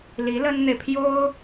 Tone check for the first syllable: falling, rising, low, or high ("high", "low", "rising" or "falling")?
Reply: rising